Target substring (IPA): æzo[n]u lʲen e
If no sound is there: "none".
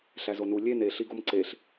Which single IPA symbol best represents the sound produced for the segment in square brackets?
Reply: n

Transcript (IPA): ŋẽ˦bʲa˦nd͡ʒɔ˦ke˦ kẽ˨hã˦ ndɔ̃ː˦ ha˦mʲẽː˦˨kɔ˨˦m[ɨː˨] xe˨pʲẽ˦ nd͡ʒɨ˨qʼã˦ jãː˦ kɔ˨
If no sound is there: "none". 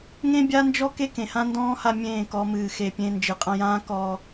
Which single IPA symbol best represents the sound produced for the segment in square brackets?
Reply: ɨː˨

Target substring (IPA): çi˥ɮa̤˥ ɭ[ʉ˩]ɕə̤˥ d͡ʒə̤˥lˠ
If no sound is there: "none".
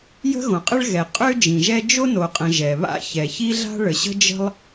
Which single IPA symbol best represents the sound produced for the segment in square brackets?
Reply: ə˩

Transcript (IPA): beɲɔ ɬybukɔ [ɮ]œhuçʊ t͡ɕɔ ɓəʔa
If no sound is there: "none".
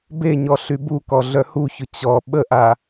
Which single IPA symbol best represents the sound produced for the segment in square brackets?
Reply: ɮ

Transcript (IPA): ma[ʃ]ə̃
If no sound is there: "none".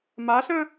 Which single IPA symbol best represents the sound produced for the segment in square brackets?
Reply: ɬ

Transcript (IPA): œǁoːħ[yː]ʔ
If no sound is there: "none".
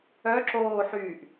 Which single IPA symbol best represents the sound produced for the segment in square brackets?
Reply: yː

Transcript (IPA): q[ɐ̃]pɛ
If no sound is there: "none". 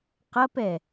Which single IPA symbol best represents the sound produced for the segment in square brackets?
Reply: ɐ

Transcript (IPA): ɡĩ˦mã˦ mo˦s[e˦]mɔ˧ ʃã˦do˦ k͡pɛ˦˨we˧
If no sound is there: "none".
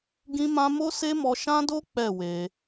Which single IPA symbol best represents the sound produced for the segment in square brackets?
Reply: e˦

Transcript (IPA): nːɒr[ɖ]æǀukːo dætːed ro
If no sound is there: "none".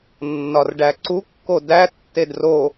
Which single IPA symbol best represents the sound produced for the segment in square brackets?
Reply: ɖ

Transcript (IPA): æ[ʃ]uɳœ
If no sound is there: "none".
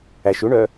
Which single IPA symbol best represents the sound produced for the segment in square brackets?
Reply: ʃ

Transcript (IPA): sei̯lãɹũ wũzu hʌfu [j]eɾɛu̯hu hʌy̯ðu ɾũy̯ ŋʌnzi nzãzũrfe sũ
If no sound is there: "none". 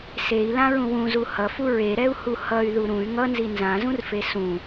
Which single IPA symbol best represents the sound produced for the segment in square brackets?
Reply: ɹ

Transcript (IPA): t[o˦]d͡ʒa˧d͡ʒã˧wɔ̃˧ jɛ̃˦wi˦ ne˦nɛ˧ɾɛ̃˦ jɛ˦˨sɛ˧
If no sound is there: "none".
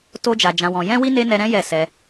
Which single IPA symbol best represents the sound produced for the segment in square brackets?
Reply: o˦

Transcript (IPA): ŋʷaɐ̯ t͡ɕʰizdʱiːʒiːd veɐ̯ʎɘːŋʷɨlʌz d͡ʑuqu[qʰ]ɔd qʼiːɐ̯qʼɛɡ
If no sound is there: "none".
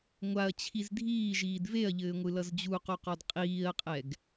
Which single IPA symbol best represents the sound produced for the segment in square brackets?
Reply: q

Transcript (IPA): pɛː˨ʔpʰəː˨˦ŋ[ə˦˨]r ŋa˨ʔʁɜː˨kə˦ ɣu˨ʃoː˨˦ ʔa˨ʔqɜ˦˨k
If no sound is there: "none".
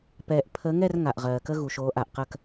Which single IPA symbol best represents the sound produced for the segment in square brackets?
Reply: ɛ˦˨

